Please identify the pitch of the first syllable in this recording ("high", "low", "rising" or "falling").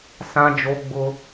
high